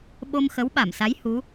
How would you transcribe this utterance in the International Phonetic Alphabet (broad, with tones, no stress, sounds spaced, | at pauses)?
ɓ o˧ m x ə˨˦ w ɓ a˧˩ m s a˨˦ j h u˨˦